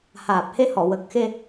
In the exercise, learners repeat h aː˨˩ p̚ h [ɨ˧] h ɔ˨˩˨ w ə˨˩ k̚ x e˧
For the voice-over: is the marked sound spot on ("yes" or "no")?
no